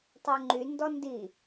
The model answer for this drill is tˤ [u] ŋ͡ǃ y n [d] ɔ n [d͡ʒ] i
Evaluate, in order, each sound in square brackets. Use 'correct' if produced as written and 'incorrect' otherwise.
incorrect: ʉ, correct, incorrect: d

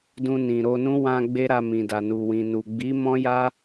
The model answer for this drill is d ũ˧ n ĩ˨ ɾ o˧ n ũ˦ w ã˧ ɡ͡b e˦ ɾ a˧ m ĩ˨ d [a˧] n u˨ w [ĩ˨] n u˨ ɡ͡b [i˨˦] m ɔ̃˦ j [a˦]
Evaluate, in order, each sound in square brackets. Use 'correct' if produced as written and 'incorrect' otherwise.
incorrect: a˨, correct, correct, correct

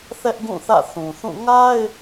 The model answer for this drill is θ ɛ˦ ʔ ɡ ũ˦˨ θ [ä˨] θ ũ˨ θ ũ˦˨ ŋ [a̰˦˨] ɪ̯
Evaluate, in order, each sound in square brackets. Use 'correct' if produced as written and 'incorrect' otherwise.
incorrect: ä̰˦˨, incorrect: a˦

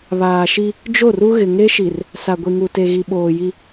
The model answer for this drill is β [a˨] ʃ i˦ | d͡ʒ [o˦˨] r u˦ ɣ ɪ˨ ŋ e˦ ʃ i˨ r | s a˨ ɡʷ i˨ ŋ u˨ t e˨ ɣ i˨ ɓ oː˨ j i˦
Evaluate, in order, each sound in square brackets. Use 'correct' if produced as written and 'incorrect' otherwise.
incorrect: aː˨, correct

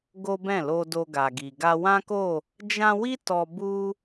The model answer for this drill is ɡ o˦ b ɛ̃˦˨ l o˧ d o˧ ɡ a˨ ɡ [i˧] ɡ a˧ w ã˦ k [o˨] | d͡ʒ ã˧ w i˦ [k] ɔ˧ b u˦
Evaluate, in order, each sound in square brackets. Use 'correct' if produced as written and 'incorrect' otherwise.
incorrect: i˨, incorrect: o˦˨, incorrect: t

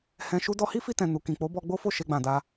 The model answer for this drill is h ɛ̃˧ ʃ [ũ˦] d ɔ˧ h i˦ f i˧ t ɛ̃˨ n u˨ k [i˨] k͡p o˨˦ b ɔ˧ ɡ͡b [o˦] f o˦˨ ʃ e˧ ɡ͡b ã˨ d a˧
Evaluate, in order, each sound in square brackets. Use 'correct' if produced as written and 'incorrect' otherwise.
incorrect: u˦, incorrect: ĩ˨, correct

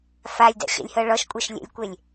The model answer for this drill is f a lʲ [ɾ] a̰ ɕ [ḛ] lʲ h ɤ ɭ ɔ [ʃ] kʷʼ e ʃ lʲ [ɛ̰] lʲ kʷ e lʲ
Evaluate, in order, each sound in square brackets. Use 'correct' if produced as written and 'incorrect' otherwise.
incorrect: d, correct, correct, correct

